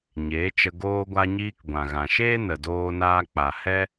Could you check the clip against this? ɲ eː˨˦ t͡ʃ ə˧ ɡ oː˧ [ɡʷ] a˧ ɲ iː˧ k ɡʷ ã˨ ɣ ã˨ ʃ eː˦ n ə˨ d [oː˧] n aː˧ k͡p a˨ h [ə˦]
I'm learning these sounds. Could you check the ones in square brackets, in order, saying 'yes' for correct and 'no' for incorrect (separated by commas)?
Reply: yes, yes, no